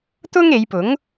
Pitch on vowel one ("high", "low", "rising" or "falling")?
high